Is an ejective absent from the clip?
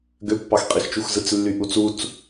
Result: no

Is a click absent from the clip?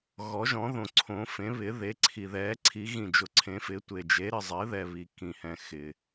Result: no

